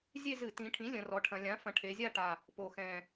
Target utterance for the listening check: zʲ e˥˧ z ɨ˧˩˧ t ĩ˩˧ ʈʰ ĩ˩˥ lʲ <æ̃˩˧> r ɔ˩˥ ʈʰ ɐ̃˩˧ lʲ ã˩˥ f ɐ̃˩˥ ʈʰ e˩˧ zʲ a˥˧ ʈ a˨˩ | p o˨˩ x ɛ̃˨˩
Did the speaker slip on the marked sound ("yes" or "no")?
yes